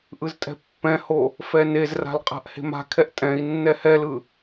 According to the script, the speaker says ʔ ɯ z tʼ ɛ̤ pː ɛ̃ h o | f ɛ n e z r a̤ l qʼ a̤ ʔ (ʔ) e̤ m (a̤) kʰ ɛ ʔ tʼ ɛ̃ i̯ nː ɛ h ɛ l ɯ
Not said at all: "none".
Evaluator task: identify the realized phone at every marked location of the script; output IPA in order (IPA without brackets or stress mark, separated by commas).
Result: h, a̤